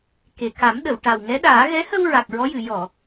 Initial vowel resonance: oral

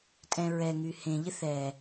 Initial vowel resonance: nasal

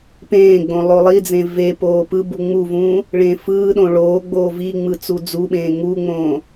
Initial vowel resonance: nasal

